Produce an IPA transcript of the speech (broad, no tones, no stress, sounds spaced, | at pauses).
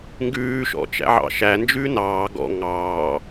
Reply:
ŋ ɡ ʉː ʃ ɔ̰ t͡ʃ æ̰ ʕ ɑ̰ ʃ æ n d͡ʒ ʉː n ɑː ɡ ɔ̰ ŋ ɑː